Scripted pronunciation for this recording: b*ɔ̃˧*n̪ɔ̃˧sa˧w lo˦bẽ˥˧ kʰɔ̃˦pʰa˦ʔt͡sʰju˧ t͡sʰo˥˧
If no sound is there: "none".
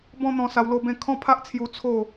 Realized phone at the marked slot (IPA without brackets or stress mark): ɔ̃˦